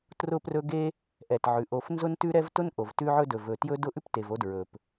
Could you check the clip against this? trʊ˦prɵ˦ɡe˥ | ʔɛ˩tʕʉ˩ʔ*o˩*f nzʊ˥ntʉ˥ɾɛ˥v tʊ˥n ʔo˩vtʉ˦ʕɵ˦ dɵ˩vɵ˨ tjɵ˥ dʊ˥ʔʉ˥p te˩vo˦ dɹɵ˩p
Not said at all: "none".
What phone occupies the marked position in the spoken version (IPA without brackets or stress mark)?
o˨